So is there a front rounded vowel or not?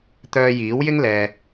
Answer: yes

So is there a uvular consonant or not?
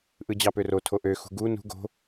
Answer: no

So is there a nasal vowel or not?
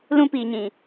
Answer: yes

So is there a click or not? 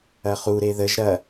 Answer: no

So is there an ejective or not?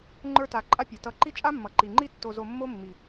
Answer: yes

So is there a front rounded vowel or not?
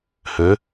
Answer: yes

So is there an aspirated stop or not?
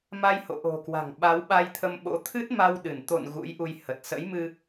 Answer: yes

